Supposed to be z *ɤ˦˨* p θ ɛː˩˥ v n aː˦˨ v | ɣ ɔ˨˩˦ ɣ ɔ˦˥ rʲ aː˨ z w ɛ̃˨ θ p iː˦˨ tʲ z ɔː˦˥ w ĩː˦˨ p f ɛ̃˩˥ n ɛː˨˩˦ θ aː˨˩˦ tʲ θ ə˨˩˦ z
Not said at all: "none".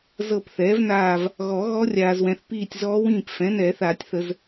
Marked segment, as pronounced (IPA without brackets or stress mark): ɤ˦˨